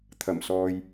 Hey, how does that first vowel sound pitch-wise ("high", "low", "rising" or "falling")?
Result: low